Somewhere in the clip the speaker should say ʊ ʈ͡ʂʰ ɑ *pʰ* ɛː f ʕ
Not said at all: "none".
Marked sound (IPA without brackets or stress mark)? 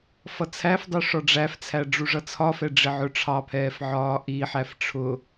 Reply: pʰ